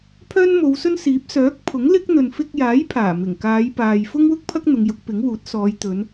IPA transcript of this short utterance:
pʰœː˥nmo˨˧wsɵ˥nsiː˨˥p̚ sœː˨˥k̚pʰʊ˨˥ŋlɪ˥k̚n̪ɵ˨n fɪ˧k̚jaː˨˥j pʰaː˨˩mɪ˨˩ŋkaː˨˧j paː˨j fʊ˥ŋwʊ˥k̚pʰɐ˥k̚ n̪ʊ˨˧ŋjʊ˨˥k̚pɪ˨˥ŋwuː˨˥t̚ sɔː˨˧jt̪ɵ˨˧n

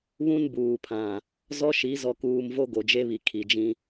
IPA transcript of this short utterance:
βũ˦nbuː˨pʰã˨ | zɔ˦ʃi˨˦zɔ˨kuː˨m vo˦ɡo˨d͡ʒe˦βi˨ kʰi˨d͡ʒĩ˦

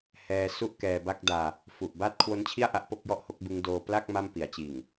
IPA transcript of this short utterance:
hɛː˧ su˥˩ʔkɛː˧ba˥˩k̚daː˧ | fu˨˩ʔ baː˥˩t̚kʰwo˦˥nt͡ɕʰi˥˩a̯ʔa˦˥ʔ po˥˩k̚jɔ˥˩ʔho˦˥k̚bɯ˦˥ŋ doː˧pla˥˩k̚ ma˥˩mpi˩˦a̯t͡ɕiː˨˩ŋ

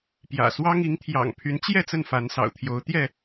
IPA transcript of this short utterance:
pjä̰˨˩ swɑ˦ŋ i˨˦ŋt̪ʰjɑ̰˨˩ŋpʰy˨˦nt͡ɕjɛ˥˨ t͡sə˥˨nfa˨˦nsɑ̰˨˩ʊ̯t̪ʰjo˨˦ʊ̯ t̪jɛ˥˨

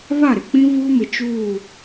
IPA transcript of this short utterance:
βa˦˨ɾɪ˨k͡pĩ˦ vuː˦mɪ˨ t͡ʃuː˦˨

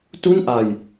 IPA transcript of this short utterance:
tu˥˩nʔa˧j

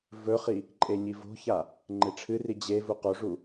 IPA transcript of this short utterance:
vɵχi | ǃʼeɲivo̤ça | ŋ͡ǃeʈ͡ʂʰɨri d͡ʑe vuqoʐu

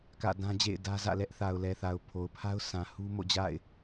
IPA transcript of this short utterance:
kä̰˦˨dã˦d͡ʑḛ˦˨ɪ̯ dä˦zä̰˦˨ lɛ˦ʔθa˨ʊ̯ lɛ˨θa˨ʊ̯ pʰo˨ʊ̯pʰa˦ʊ̯sã˨ hu˦mo̰˦˨d͡ʑa̰˦˨ɪ̯

